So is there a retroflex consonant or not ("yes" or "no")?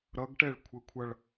yes